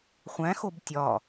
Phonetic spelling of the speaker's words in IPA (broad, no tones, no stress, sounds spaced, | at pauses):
χʷ æ̃ x o b tʲ ɒ